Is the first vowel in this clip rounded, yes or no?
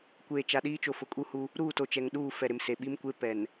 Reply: no